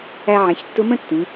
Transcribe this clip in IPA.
æ˧ ʕ ɛ̃˩˧ ç tː ʊ˧˥ m ə̃˥ tː ĩ˩˧

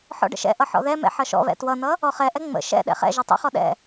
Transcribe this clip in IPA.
ħ ɔ̰ ɖ ə̰ ʃ ɛ̰ ʔ ʌ ħ ɔ̰ ð ɛ m ɛ̰ ħ ʌ ʃ ɔ̰ β ɛ̰ t w ʌ n̪ ʌ | ɔ χ ɛ ʔ ɛ ŋ͡m ə̰ ʃ ɛ̰ ɗ ɛ̰ χ ɛ̰ ʒ ɛ tˤ ɛ̰ χ ɔ ɗ ɛ̰

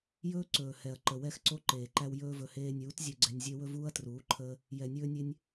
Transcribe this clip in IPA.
j ɵː˦ ǀ ɵː˨ h ɛ˨ ɐ̯ ǃ ə˨ w ɛ˦ x ǀ o˦ ǃ eː˨ ǃ æ˧ w j ɵː˧ v ɵ˨ h eː˧ nʲ uː˨˦ t zʲ u˧ ɡ͡ǀ ɛ˧ nʲ zʲ e˦ w ɵ˦ v uː˦ ɐ̯ t r uː˨˦ ǃʰ əː˦ | j ɛ˨ nʲ ɵː˧ nʲ e˧ nʲ

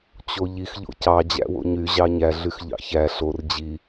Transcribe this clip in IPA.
t͡ɕ o ʎ i x ʎ o̰ c ɑ d͡ʑ æ̰ w o̰ ɲ y ʑ ɑ ɲ æ ɮ y x ʎ ɑ̰ ç æ ɬ o r d͡ʑ i

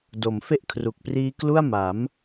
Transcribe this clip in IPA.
d o˩˦ m f e˥˩ ʔ kʰ r u˨˩ k̚ p r iː˦˥ k l u˥˩ a̯ m a˩˦ m

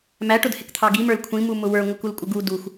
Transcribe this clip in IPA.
m æ ʈ ʊ d h ɪ k t̪ʰ ɑ ɡ i m ə˞ l kʷʰ ĩ m u m ʊ w ə˞ ŋʷ ɪ k u l kʷʼ ɪ ɡ u d u x

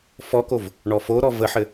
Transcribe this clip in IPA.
f ɔ k o v | ɳ ɔ f o ɾ ɔ v ə ħ ɘ

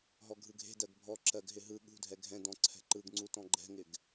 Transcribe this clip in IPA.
ɦ ɔ ɡʱ ɯ ɡʱ e̤ d ɜ ɡ bʱ ɔ ǁ ɜ ɡ ɦ ɪ ɦ ɯ ɠ ṳ dʱ ɛ ɡʱ ɛ̃ d ɔ̃ ǀʰ ɛ̤ ǃ ɯ ɡ ŋ͡ǀ u t ɔ̃ ɡ͡ǃ ɛ̤ ŋ ɪ ɡ

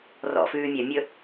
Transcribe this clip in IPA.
r ɔ̰ f ʉː mʲ œ mʲ ɵ

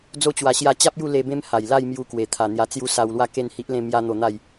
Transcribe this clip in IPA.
d͡z o˧ t͡ɕ w a˨˩ ɕ j a˧ t͡ɕ a˦ p̚ j u˥˧ l e˧ b ẽ˦ m h a˨˩ j l a˥˧ j m j u˧ k w e˨˩ t̪ʰ a˨˩ n̪ j a˧ t͡s j u˦ s a˧ w l w a˥˧ k e˥˧ n h i˦ ʔ l ẽ˥˧ m j a˦ n̪ o˧ n̪ a˥˧ j

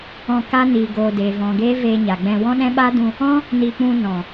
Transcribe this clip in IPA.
ɔ̃˧ k a˦ n iː˨ ɡ oː˨ d eː˨ v ɔ̃˨ ɡ eː˦ v eː˧ ɲ a˨ ɡ͡b ɛ̃˧ w ɔ̃˦ ɗ ɛ̃˦ ɓ a˦ d ũ˧ | ɔ̃˦ | n i˧ k͡p ũ˧ n ɔ̃˨

